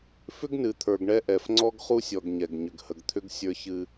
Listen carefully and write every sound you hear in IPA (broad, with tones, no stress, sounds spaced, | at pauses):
f ʏ˦ ɡ n ɨ˨ t̪ʰ ə˞˨ ɡ ɳ ɛ˦ ʔ ɛ˨ f ŋ͡ǀ ɔ˦ ɡ χ u˦ sʲ ɔ˨ ɡ ɲ ɛ˨ ɡ ɲ ʏ˨ ɡ h ə˨ ɡ t̪ʰ ʏ˦ ɡ sʲ ə˞˦ ç ɨ˦